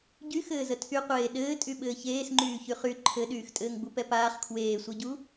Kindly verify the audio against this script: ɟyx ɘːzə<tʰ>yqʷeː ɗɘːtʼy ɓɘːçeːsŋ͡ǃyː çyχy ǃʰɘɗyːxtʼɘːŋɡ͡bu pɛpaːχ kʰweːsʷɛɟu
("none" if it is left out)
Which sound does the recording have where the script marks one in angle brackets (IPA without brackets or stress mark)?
tʰ